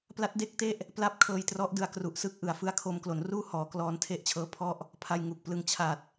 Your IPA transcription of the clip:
p l a˦˥ t̚ d e˥˩ k̚ t e˥˩ ʔ | p l a˥˩ p̚ kʰ ɤː˧ j t r ɔ˦˥ ʔ d ɯ˧ a̯ k r u˨˩ ʔ s ɯ˦˥ k̚ ʔ ɯ˩˦ a̯ f ɯ˦˥ a̯ kʰ o˧ m k l o˩˦ n r uː˥˩ h ɔː˩˦ k l ɔː˧ n tʰ e˦˥ ʔ t͡ɕʰ ɤː˦˥ pʰ ɔ˥˩ ʔ | pʰ a˧ j ŋ u˨˩ k̚ p l ɯ˧ ŋ t͡ɕʰ a˨˩ t̚

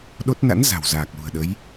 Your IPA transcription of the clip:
ɗ o˦˥ t̚ n a̰˧˥ n z a̤˨˩ w z aː˨˩ k̚ l ṳ˨˩ ə̯ ɗ ə˨˦ j

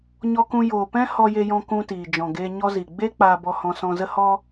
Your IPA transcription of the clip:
ɲ ɔ˧ k ũ˧ j oː˨ p ɛ̃˦ h ɔ˧ j e˧ j ɔ̃˧ k ũ˧ t iː˨ d͡ʒ ɔ̃˨ ɡ eː˧ ɲ ɔ˧ z i˨ ɡ͡b e˦ k͡p aː˧ b ɔ˧ h ɔ̃˧ s ɔ̃˧ z ə˦ h ɔ˦

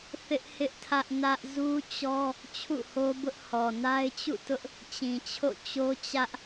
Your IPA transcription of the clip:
θ ɪ˦ ʔ h ɪ˦ ʔ tʰ ä˦ ʔ n ä˦ ʔ z u˦ t͡ɕ ɔ˦ | t͡ɕʰ ṵ˦˨ h o˦ b ʊ˦ ʔ h ɔ˨ n a˦ ɪ̯ t͡ɕ ṵ˦˨ t ʊ˦ ʔ | t͡ɕ ĩ˨ t͡ɕʰ o̰˦˨ t͡ɕ o˦ t͡ɕ ä˦ ʔ

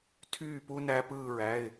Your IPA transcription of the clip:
tʰ yː˦˨ p u˦ n æ˦ p ɯː˦˨ ɹ æ˩˧˩ ɪ̯

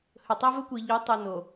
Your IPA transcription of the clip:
h ɵ˨ tˤ a˦ v ɵ˦ kʷ i˨ ʎ ɵ˨˦ tˤ o˨ n o˨

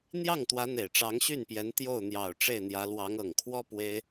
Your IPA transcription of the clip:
n̪ j ɑ˥˩ ŋ t̪ w ä˧˥ n̪ e˨˩ ɪ̯ ʈ͡ʂ ɑ˧˥ ŋ ɕ y˥˩ n p j ɛ˧˥ n t̪ j o˥˩ ʊ̯ n̪ j ɑ˨˩ ʊ̯ ʈ͡ʂ e˥˩ ɪ̯ n̪ j ä˧˥ l w ɑ˧˥ ŋ ɤ˨˩ ŋ kʰ w ɔ˥ p w e˥ ɪ̯

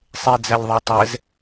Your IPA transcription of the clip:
sˤ e d͡z æ lʲ ðˤ a tˤ ɛ z

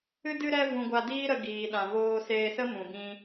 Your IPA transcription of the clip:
ɨ˧ d ɨ˧ ɾ ɛ˧ v ũ˨ ɡʷ a˧ d iː˦ ɾ ə˧ ɡ iː˨ ɗ ã˨ v oː˧ s eː˧ s ə˦ m ũ˨ b ĩ˧

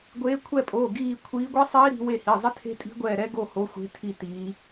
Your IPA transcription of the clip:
ɡʷ eː˨˦ kʷʰ ɛ˦˨ pʼ oː˩˧˩ ɡ iː˦˨ kʷʰ iː˨˦ ɡʷ e˦˥ sˤ iː˦˥ ɾ i̤˨˦ w e˦˨ h i˩˧˩ zˤ ɪ˦˥ tʰ e̤˦˥ tʼ i̤˦˥ ɡʷ ɛː˦˨ ɾ ɛ˦˥ ɡ o˦˨ h o˨˦ xʷ e̤˨˦ tʰ i˦˨ t iː˨˦

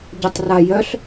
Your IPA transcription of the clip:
ɟ ʊ tˤ r a j œ ɬ

